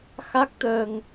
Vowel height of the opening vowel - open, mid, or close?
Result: open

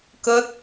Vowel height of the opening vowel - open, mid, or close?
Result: mid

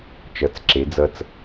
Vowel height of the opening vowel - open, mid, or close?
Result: mid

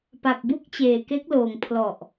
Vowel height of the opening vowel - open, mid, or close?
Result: open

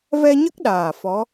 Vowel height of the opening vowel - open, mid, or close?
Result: mid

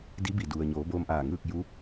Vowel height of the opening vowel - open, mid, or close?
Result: close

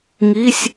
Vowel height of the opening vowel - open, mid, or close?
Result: close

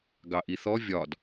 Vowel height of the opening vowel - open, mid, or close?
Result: open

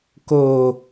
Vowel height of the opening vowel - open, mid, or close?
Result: mid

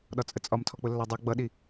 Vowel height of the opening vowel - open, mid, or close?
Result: open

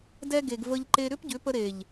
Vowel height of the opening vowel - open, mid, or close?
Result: mid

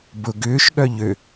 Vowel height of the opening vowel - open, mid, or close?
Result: close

